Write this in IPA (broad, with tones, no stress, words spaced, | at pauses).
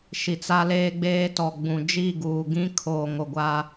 ʃi˨t͡sa˦leː˦ ɡ͡beː˦tɔ˨ ɡ͡bũ˨ d͡ʒi˦˨ɡuː˨ɡĩ˦ kʰoː˨ŋo˨ ɡʷa˦